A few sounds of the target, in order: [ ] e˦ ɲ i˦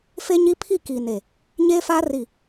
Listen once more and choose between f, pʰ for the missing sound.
f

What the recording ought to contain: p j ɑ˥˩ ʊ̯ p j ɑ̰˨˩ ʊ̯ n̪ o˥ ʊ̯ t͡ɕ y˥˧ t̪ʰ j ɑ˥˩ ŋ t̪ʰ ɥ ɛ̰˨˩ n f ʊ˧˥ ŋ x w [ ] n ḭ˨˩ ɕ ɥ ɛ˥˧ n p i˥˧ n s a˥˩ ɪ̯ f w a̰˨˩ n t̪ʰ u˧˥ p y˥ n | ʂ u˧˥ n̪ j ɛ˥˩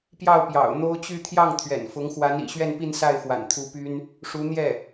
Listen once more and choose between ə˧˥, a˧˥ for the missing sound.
a˧˥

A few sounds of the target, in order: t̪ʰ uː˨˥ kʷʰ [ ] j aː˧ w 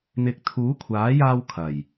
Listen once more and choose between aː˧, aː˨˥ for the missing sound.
aː˨˥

